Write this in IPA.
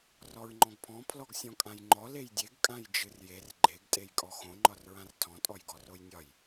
r ɔ ɹ ŋ͡ǃ ɔ̃ ɡ pʰ ɔ̃ pʰ l ɔ ɡ sʲ ɔ̃ kʼ ã j ŋ͡ǃ ɔ l e j dʲ e ɡ kʼ ã j d͡ʒ ɨ r j e r ɡ͡ǃ e ɡ tʼ e j kʼ ɔ x õ ŋ͡ǃ ɒ r ɹ ã r tʰ ɔ̃ tʼ ɔ j ɡ ɔ r o j nʲ ɒ j

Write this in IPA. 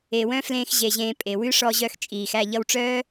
e˨ w œ̃˦ f l ẽː˧ x ʑ e˨ ʑ ẽː˨ pʼ e˨ w ʉ˦ ʂ ɔ˧ ʑ œ˧ x t͡ʃʼ iː˨ x æ˦˨ ʎ ʌ˧ w ʈ͡ʂ œː˦

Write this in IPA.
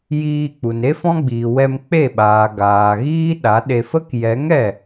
j iː˧ k͡p u˨ n e˦ f ɔ̃˦ ɡ͡b iː˨ w ɛ˧ m k͡p e˦˨ ɓ aː˨ ɡ aː˨ ɣ iː˦ ɗ a˨˦ ɗ e˧ f ə˦ k j ɛ˨˦ ŋ ɛ˦˨

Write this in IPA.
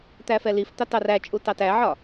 t̪ æ f ɛ l i f t̪ ɑ t ɑ r æ t͡ʃʼ u t ɑ t æ ʕ ɒ

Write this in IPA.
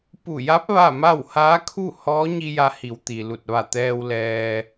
p u˧˩ j a˧˥ p̚ ʋ a˥˨ m a˥˨ w h aː˧˥ kʰ u˥˨ h ɔː˧˥ ɲ i˧ j a˧ h i˩˧ w t̪ i˩ l u˧˩ t̚ ʋ a˧˩ t̪ ɛː˧ w l ɛː˧

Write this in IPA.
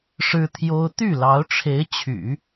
ʂ ɻ̩˥ t̪ʰ j o˥ ʊ̯ t̪ y˥˩ l ɑ˧˥ ʊ̯ ʈ͡ʂʰ e˧˥ ɪ̯ t͡ɕʰ y̰˨˩˦

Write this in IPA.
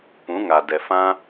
p ũ˨˦ ŋ aː˨ d ɛ˨ f ã˦

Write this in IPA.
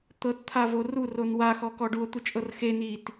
t̪ ɤ t t̪ʰ a v o r u r o n w a x ɔ k ɔ ɖ u o̯ t̪ u t͡ʃʼ ɤ r x e n i t

